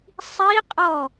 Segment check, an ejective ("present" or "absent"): present